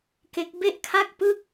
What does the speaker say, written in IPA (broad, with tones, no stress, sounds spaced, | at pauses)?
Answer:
k e˦˥ k̚ b e˥˩ ʔ kʰ a˥˩ k̚ p ɯ˥˩ k̚